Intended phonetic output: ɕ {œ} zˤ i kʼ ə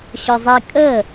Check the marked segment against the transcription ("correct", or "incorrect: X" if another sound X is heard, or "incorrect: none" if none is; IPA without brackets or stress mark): correct